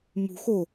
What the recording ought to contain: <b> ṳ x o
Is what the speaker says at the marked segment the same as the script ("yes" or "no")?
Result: no